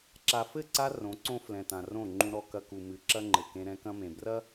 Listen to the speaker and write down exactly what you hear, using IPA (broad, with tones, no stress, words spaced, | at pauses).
ǁa˨fɘ˦˨ǀa˧ rõ˨˦ǀõ˦ flɛ̃˨tã˨rõ˦˨ŋ͡ǃũ˧ ɾɔ˧kɐ˧ku˨ mɨ˨ǁɐ˦ŋ͡ǃɘ˨ kẽ˧ɾɛ̃˧kɐ̃˦mẽ˨ brɐ˦